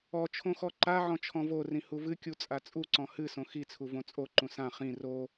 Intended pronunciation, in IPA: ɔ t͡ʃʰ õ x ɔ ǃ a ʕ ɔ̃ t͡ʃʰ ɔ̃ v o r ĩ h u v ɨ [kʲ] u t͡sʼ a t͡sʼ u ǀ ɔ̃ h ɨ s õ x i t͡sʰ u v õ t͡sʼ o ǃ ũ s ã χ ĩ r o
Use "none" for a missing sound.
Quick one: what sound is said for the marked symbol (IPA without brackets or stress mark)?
kʲ